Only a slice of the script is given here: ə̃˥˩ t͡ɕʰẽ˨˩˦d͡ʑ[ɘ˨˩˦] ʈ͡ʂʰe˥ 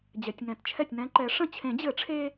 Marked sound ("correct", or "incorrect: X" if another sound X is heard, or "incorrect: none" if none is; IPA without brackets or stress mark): correct